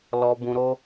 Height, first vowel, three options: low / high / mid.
mid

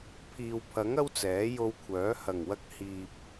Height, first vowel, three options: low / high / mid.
high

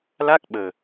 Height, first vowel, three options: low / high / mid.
low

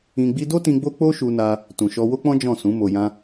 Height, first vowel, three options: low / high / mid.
high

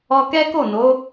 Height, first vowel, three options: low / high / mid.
mid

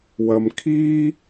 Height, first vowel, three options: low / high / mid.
low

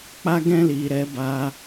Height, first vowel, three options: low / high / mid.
low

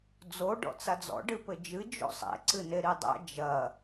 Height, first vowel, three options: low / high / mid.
mid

